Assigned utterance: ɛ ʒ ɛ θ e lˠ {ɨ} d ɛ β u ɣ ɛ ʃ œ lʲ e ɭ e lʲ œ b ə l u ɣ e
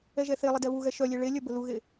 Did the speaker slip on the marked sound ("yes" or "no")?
yes